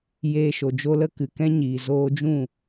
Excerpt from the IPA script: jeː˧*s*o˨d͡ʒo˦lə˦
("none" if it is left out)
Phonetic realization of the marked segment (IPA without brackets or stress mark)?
ʃ